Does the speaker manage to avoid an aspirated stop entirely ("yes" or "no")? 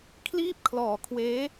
no